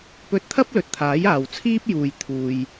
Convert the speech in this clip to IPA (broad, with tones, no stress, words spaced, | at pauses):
pɵ˧t̚t̪ʰɐ˥p̚ lɵ˨t̚t̪ʰaː˨˥j aː˨wt͡sʰiː˥p̚ juː˨jt̪ʰuː˨j